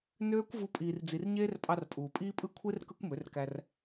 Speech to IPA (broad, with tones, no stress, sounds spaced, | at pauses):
n øː˦ kʷ v u˦ pʼ iː˧ r d͡z i˧ r ɲ eː˦ r pʼ ɑ˧ r pʼ uː˨ pʼ iː˦ pʼ ɯ˦ kʷʰ e˦ r k ɯ˦ kʷ m ø˨˦ r k æ˧ r